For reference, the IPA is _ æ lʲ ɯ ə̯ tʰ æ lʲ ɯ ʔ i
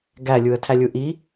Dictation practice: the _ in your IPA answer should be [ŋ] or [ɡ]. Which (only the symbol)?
ɡ